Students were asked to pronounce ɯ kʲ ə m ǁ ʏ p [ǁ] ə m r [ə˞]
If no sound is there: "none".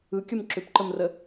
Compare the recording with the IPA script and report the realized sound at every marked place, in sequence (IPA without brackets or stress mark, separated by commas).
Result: ǃ, ə